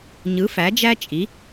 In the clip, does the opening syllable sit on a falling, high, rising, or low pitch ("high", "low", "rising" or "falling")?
rising